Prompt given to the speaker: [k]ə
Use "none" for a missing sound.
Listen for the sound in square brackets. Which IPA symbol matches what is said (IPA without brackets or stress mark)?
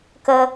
k